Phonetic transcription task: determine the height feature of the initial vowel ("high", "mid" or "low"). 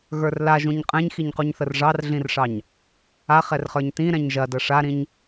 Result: mid